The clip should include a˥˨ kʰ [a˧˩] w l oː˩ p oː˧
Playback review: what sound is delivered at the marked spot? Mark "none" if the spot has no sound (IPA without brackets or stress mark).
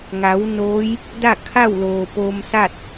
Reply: a˥˨